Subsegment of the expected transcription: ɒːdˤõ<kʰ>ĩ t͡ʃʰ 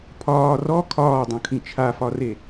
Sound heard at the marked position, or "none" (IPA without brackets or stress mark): kʰ